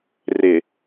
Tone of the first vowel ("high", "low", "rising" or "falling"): low